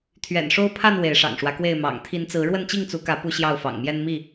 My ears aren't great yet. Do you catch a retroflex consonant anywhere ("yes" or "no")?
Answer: yes